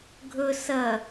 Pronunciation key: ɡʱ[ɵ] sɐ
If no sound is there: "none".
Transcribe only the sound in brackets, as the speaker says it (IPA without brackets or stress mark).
ɵ